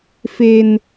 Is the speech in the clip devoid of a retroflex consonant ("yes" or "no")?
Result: yes